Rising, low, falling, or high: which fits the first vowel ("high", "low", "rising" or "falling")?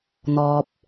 low